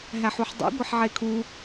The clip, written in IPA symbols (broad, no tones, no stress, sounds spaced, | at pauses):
ɦ æ ħ u ħ dˤ ṵ ɡʷ e ħ ʕ e kʰ u